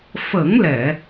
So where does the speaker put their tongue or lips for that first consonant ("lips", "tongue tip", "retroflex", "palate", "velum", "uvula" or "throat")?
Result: lips